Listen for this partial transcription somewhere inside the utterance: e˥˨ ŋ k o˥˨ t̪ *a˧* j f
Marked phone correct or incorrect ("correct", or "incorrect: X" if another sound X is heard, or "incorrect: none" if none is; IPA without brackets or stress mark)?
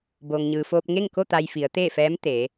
correct